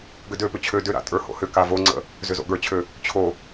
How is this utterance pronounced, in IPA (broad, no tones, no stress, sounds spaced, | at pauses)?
ɡ ʏ d ø p ʏ t͡ɕʰ ø d ʏ ɾ a̰ tʼ ə˞ h o̰ h ʏ k a v o ŋ͡ǀ ə̰ | z ʏ z o̰ ɡ ə˞ t͡ɕʰ ø | t͡ɕʰ o